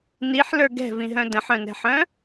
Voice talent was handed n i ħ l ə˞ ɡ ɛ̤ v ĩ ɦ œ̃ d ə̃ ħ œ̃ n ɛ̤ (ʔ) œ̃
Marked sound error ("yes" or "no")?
yes